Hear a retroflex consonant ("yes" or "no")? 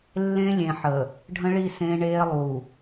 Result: yes